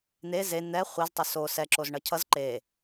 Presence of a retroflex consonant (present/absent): present